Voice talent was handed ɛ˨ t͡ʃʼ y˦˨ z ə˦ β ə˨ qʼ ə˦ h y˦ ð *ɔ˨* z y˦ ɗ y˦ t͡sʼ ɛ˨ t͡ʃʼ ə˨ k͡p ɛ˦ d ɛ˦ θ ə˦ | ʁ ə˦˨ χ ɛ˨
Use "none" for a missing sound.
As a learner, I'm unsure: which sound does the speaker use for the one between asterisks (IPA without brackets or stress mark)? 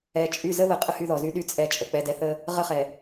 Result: ɔ˨